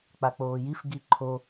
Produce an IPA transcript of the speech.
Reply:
k͡pak͡poːjif ɡiǃʰo

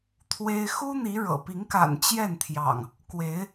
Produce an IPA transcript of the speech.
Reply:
t̪ʰwe˦ɪ̯ xu˦n̪i˨˦ ɻɤ̰˨˩ pi˨˦ŋka̰˨˩n t͡ɕjɛ˥˨nt̪ʰjɑ̰˨˩ŋ | kwe˨˦ɪ̯

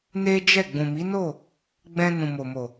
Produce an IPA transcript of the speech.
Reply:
ne˦d͡ʒɛ˦˨ ɡ͡bũ˨mi˨˦no˦˨ | ɡ͡bɛ̃˧nũ˨mo˨mo˨

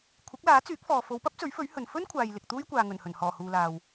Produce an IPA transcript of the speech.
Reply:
kʷʰɪ˨˥k̚laː˨˥t͡syː˨˥k̚fɔː˨ fo˨˧wpɐ˥p̚t͡sɵ˨˥ɥfɵ˨˥ɥ hɵ˨n fɵ˥nkʷʰaː˨j lɪ˨k̚t̪uː˥jkʷaː˨ ŋɵ˨˩nhɵ˨˩nhɔː˨˩ huː˨laː˨w

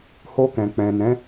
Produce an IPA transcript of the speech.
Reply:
ho˧kɛ̃˨ k͡pɛ̃˨nɛ̃˨˦

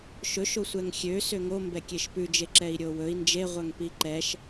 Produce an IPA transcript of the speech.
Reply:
ʃɵʃ osʷɛŋxʲø søŋo mbɛkʲeʃpʉ d͡ʒeǁɛi̯ɾʲowɵi̯ nd͡ʒe ʁʷœŋpiǃɛʃ

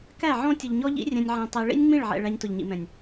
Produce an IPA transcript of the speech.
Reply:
kæ˦˨ ʕɔ̃˦tʲʊ˨ʎɲɔ˦ʎḭ˦ rʲɛ̃˧nʲʕæ̃˧ tˤɛ˧ ɭḭ˦nʲŋ͡mĩ˦˨ɭʕɛ̰˨ ɭæ˧ɲtʊ˨ʎɲḭ˨mɛ̃˨nʲ

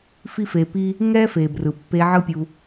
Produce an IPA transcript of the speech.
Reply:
fi˦fe˧pi˦ | ŋɛ˦fe˨ brɯ˨pːe˧ ʕɯ˦pʲu˧

